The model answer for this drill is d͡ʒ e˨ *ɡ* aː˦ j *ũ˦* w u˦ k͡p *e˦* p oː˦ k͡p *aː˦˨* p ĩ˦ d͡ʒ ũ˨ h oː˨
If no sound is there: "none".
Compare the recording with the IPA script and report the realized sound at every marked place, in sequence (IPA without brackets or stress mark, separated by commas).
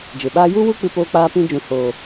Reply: ɓ, u˦, ɨ˦, aː˦